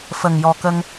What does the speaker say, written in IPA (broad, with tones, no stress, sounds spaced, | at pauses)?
f ə˨˩ ŋ j ɔ˨˩ k ə˧ ŋ